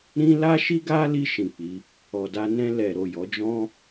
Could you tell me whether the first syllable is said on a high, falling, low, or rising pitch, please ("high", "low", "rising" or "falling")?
high